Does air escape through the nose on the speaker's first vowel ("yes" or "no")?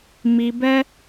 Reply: no